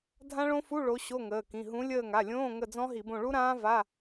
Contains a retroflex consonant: yes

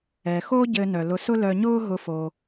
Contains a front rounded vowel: yes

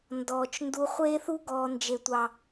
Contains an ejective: no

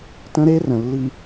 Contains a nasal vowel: yes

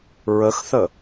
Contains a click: no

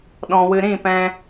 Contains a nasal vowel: yes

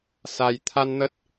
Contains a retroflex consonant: no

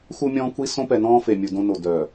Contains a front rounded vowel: yes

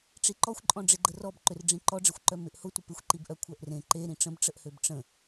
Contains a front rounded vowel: yes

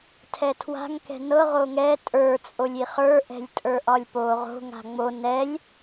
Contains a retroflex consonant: no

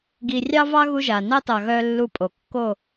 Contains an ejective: yes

